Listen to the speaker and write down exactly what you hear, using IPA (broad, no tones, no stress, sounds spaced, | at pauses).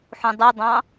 ħ ũ dˤ i dˤ ɑ̃